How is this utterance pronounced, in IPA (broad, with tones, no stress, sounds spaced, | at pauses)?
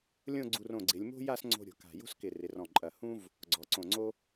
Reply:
lʲ õ˥˧ ɡ͡ǀ u˧ r õ˧˩ ɡ͡ǀ ɪ˩˧ lʲ m o̤˥ j a˥˧ s ŋ͡ǀ o̤˧ ɾʲ o̤˩˧ k a̤˧˩ j o̤˥ s k ɪ˧˩ r ɪ˩˧ r ɔ̃˧˩ ǃʼ ɐ˧˩ h ũ˥ v | ɡ͡ǀ ɔ˩˧ ǀ õ˧˩ ŋ͡ǀ o˥